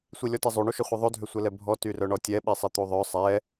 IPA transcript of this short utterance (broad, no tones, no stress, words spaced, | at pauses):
sʷilʲɔtizˤu ɳuʃœχʷiðˤo dʱøsʷɛlɛbʱɔ tyrœɳɔtʲɛ ɓisˤit̪uðˤœ sˤɛ